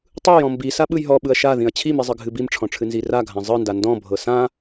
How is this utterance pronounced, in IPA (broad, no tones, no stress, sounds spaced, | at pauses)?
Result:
tˤ ɯ j ɔ̃ m b i s a ɓ ɯ j ɦ ɔ ɓ ɯ ɐ̯ ʃ a ð ĩ ɐ̯ t͡ɕʰ i m i zˤ ɨ ɡʱ ɨ b i m ʈ͡ʂʰ ɔ̃ ʈ͡ʂʰ ɨ n z i r a ɡʱ ã zˤ ɯ n d a n d ɔ̃ bʱ ɤ s ã